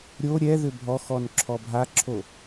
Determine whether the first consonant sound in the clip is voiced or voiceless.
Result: voiced